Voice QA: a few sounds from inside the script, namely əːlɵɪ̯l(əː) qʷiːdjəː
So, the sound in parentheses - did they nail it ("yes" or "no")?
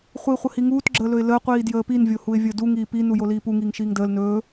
yes